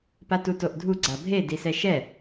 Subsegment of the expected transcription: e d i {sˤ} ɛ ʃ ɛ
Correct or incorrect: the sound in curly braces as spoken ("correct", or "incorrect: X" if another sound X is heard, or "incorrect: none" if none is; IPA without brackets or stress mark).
incorrect: s